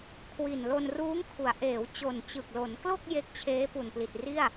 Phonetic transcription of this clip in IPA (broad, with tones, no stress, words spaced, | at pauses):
kʰwi˨˩n lo˧nruː˦˥ŋkʰu˩˦a̯ ʔeː˩˦wt͡ɕo˨˩n t͡ɕɯ˨˩k̚lo˩˦nklo˥˩k̚ je˦˥k̚t͡ɕʰeː˦˥ pu˨˩npli˨˩t̚ri˥˩a̯